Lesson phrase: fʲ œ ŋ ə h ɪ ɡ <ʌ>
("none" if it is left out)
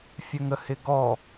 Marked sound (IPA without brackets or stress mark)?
ɔ